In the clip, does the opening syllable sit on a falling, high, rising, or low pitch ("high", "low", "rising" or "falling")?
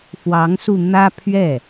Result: rising